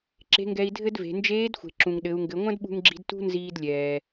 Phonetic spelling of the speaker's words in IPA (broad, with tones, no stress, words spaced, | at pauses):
ǁe̤˧˥ŋɡɛ˧i̯dʱɘ˥dve̤˩˧ nd͡ʒeː˧˥dxʷe̤˩ ǁũ˩ŋɗɘ˩˧u̯ŋɡɘ˩˧ ŋʷɐ̃˥dɓṳ˧ŋɡ͡ǁi̤˧d tṳ˥nziː˧d lʲɛː˩